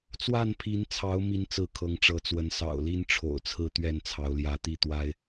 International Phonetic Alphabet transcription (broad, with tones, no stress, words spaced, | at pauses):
t͡swa˥˨npʰi˨˦nt͡sʰɑ˨˦ʊ̯ mi˨˦nt͡sɹ̩˨˦ kʰɤ˨˦ŋʈ͡ʂɤ˨˦t͡swə˨˦n sɑ̰˨˩ʊ̯li˦nʈ͡ʂʰo̰˨˩ʊ̯t͡sʰɹ̩˥˨ t̪ɥɛ˥˨nt͡sʰɑ˨˦ʊ̯ljä˨˦t̪i˥˨ t̪wa˦ɪ̯